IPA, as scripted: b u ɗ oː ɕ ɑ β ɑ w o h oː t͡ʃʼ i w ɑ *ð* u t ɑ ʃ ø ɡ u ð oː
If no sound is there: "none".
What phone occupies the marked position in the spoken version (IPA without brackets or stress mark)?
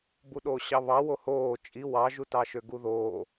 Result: ʒ